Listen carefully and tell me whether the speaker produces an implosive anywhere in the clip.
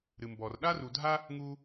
yes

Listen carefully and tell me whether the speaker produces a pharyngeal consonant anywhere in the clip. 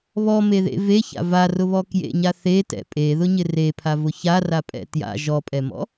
no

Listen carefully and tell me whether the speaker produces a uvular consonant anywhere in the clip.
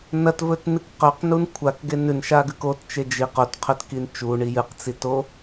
yes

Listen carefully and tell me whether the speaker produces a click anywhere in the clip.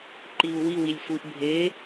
yes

